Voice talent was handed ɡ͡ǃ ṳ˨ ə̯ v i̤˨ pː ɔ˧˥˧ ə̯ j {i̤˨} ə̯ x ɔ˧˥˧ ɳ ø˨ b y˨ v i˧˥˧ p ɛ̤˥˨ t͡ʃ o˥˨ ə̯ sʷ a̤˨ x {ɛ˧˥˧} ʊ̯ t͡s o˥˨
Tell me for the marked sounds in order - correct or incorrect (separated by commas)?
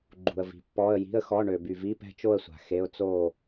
incorrect, incorrect